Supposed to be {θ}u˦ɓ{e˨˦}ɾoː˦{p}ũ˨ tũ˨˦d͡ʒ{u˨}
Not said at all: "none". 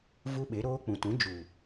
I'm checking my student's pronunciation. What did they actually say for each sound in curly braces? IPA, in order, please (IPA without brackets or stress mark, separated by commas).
v, e˨˦, k͡p, u˨